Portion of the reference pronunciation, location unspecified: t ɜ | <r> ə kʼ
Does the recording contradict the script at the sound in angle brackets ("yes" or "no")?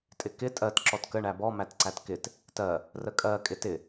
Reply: no